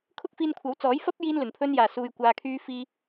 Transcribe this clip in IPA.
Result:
kʰ ʊ˥ k̚ f iː˧ n kʷʰ ɐ˨˥ w t͡s ɔː˨˥ j f ɐ˥ p̚ j iː˧ n l ɵ˨˩ n pʰ ɵ˧ n j aː˨˩ s uː˨ j kʷ aː˨ kʰ yː˧ f iː˧

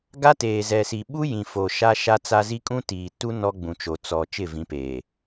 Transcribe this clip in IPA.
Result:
ɡ a˦ t eː˨ z ɛ˨ s i˨ ɓ u˦ j ĩ˨ f o˨ ʃ a˦ ʃ a˦ t͡s a˦ z i˦ kʼ ũ˦ t iː˨ t u˦ n ɔ˦ ɡ͡b ũ˨ t͡ʃ o˨ t͡s ɔ˨ t͡ʃ ɪ˦˨ v ĩ˨˦ p eː˨

